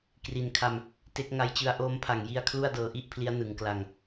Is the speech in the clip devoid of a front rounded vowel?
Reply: yes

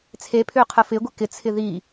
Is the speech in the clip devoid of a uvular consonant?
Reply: no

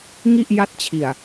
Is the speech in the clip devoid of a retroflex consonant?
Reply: yes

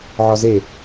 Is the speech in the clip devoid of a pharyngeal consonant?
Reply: no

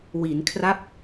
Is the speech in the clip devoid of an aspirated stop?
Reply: no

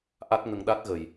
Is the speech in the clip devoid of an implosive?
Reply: no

